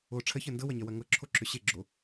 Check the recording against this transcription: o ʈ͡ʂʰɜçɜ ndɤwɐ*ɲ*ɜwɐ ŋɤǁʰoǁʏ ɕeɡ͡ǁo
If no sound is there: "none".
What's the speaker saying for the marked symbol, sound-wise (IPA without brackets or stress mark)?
ɲ